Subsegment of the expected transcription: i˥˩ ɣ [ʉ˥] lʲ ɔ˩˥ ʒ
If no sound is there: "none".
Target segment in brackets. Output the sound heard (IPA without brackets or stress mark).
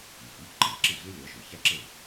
ʉ˥